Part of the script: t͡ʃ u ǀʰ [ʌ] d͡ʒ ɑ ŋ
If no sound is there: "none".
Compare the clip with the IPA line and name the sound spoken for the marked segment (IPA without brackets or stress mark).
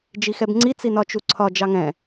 ɒ